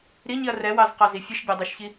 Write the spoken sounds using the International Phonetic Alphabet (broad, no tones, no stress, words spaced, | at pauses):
ɾiɲiɐ̯ rɛwɑzqɑzi fʲɯʃbʲadˤiʃçi